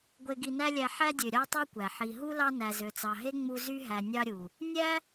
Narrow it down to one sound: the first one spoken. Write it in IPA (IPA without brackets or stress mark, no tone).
ɡʷ